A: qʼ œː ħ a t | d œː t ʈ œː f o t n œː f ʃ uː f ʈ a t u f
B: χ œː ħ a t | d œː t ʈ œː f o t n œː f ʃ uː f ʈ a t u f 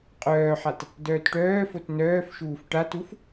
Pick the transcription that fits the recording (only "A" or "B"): A